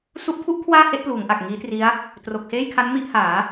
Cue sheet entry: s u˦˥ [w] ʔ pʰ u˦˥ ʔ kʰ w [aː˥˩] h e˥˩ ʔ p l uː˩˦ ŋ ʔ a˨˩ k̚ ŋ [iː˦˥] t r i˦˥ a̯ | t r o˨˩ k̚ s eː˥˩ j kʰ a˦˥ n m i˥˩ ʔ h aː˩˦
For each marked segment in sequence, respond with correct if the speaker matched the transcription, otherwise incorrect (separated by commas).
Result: incorrect, correct, correct